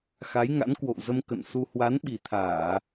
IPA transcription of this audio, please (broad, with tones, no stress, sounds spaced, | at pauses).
x a˨˦ j ŋ a̰˧˥ n k w o̰˧˨ w z ə˧ m k ə̰˧˨ n s u˧ h w a˨˦ n ɓ i˨˩ t̪ʰ aː˧˩˨